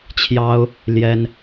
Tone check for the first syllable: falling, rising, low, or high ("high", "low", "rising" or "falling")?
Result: high